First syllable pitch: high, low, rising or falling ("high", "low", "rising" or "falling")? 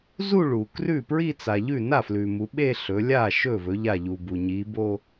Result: falling